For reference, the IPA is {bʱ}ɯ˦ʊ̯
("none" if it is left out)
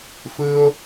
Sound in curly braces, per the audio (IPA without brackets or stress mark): f